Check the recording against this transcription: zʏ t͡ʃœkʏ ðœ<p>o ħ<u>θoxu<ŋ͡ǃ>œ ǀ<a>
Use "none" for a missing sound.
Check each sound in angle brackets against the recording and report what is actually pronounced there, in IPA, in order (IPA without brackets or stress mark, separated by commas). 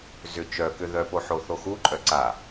p, o, ǃʼ, a